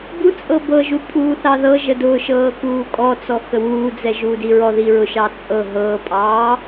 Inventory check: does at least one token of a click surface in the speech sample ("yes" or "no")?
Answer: no